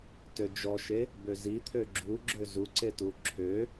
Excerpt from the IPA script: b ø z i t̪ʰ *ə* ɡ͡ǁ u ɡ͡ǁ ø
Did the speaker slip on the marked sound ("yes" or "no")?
yes